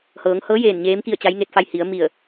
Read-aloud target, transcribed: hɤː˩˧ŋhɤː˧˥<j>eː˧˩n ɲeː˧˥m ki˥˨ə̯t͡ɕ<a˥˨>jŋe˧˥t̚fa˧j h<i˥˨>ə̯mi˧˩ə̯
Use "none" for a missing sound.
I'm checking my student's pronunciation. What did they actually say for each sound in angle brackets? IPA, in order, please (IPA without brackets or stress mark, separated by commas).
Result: j, a˧˥, i˩˧